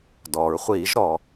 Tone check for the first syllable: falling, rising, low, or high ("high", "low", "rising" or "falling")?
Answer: low